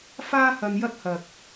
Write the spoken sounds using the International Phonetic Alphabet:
f aː˥ h ɐ˧ n j ɐ˥ t̚ h ɐ˨ k̚

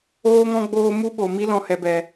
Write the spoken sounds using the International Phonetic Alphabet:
oː˦ ŋ ɔ̃˦ ɡ͡b oː˦ m u˦ ɓ o˨ m i˧ l ɔ̃˨ h ɛ˨ b ɛ˨

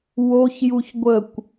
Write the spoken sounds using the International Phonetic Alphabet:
w o ç j u ç ɡʷ ə kʷ

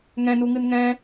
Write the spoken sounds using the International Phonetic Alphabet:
ŋ ɛ̃ n u ŋ ɨ n ŋ ɛ̃

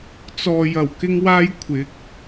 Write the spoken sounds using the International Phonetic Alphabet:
t͡s ɔː˨ j ɐ˨˩ w k ɪ˥ ŋ w aː˥ j kʷʰ ɪ˨˥ k̚

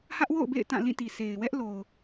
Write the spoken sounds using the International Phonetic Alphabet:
h ä˦ ʔ w o̰˦˨ ʊ̯ b ḛ˦˨ ɪ̯ t ã˦˨ l ĩ˦˨ t i˨ s e˨ ɪ̯ w ɛ˦ ʔ l o˨ ʊ̯

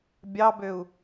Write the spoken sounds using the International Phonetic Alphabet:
bʲ ɑ b ø u̯

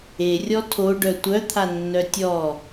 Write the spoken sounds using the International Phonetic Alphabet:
e rʲ ɔ tʰ o ɖ œ tʷ œ t̪ʰ a nː œ tʲ ɔ

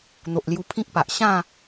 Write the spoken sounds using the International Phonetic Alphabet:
n̪ o˨ ʔ l j u˧ pʰ ĩ˦ k̚ p a˨ ʔ ɕ ã˥˧

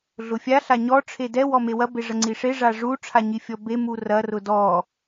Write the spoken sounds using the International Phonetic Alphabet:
ɮ ʊ fʲ a ɬ a ɲ ɔ ʈ͡ʂʰ e d ɛ w ɔ m e w ɐ b e ʐ ɐ ŋ͡ǀ i ʂ e ʐ a ʐ u ʈ͡ʂʰ a ɲ i fʲ ɔ b e m u r ɐ r ʊ d ɔ

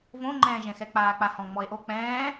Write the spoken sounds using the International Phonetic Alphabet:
v õ ŋ͡ǃ ɛ̃ː ʒ ɛ̃ x ɛ k͡p aː k͡p a h ɔ̃ ŋ͡m ɔ e̯ ʔ o k͡p ɛ̃ː

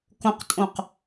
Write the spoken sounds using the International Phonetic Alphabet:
k õ q tʼ õ q

